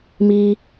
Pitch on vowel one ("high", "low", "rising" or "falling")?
high